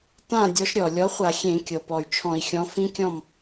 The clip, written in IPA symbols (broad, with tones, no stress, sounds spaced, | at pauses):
t ã˥˨ dʲ ɔ˨˥ ʃ ɾʲ ɔ˩ lʲ ɔ˨˥ χʷ a˧˩˧ xʲ ẽ˧˩˧ kʲ ɤ˩ p ɔ˩ y̯ t͡ʃʰ ɔ̃˧˩˧ i̯ xʲ ɔ̃˨˥ f ĩ˦˥ kʲ ɔ̃˥˨ m